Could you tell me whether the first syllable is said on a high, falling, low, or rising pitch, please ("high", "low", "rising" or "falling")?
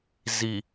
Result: low